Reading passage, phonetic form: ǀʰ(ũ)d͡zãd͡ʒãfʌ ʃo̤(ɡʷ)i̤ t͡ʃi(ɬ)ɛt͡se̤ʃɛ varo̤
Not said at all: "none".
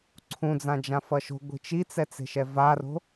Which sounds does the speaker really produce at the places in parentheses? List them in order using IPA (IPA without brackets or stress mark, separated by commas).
ũ, ɡʷ, t͡s